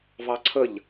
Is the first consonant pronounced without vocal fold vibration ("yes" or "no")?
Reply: no